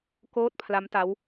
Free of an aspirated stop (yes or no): no